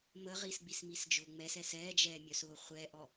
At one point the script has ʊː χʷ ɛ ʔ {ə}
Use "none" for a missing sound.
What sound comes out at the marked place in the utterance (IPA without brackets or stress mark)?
ɔ